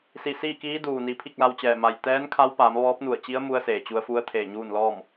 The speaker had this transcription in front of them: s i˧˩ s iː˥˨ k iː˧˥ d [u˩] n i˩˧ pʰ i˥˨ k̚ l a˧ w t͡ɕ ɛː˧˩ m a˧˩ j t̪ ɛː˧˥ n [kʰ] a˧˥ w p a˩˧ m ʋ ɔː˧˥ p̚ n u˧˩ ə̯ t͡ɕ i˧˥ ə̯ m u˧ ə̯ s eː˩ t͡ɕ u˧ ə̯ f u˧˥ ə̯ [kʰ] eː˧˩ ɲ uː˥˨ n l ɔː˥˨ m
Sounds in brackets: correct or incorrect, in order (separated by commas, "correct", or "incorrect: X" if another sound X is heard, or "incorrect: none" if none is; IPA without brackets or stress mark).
incorrect: uː˩, correct, incorrect: t̪ʰ